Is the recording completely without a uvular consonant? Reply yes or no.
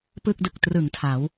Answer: yes